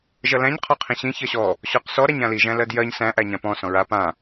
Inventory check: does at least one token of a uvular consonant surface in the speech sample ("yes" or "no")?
yes